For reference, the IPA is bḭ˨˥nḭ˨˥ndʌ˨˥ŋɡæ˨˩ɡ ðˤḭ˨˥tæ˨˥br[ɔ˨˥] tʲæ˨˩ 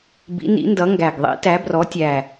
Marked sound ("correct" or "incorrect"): correct